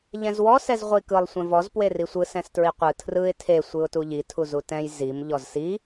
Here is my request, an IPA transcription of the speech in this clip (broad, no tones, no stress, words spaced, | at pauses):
ʎɛ̃zwɔ sɛzʁʷikɯlˠ sʷɛ̃vɔz pwerisʷɯ sɛ̃stɹiqʷɯ tʰrɯɪ̯ tʰe sʷɯʊ̯tuʎi tʰuzutɛ̃j zim ʎɔzsi